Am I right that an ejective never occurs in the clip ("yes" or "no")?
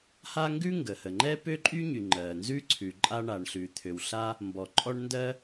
no